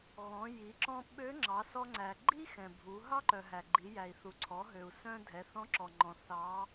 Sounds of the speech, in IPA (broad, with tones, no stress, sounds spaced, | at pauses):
ɣ ɔ̃˩˧ j i˩˧ ǁ ɔ̃˧ ɓ ø˧˥ ŋ͡ǁ ɑ˩˧ s ɔ˧ ŋ͡ǀ æ˩ ɡ͡ǃ i˥ x ɛ̃˩ bʱ u˩˧ ɦ ɑ˥ ǃ œ˩ ɦ æ˩ ɡ͡ǃ i˩˧ j æ˩ i̯ θ u˩˧ ǀʰ ɔ˩˧ ɦ ø˩ u̯ s œ̃˧ dʱ ɛ˩˧ θ ɔ̃˧˥ ǁ ɔ˩ ŋ͡ǃ ɔ̃˩ θ ɑ˩˧